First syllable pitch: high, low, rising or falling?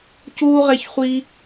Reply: high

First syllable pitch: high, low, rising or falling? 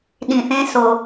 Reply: low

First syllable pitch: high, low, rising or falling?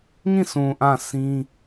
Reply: falling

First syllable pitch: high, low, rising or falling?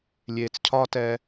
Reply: low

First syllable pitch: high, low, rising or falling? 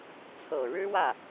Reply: low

